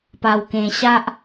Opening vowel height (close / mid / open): open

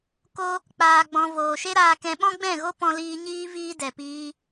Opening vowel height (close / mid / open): mid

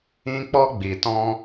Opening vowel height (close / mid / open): close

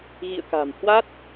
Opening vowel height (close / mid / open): close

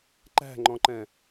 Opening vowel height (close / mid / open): open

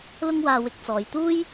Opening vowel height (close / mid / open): close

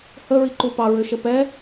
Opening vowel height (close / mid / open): mid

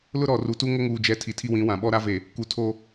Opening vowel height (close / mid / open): close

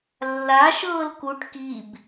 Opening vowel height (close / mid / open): open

